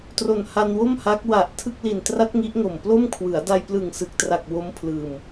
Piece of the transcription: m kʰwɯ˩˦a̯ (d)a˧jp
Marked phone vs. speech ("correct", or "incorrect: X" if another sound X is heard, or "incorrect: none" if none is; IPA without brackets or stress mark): correct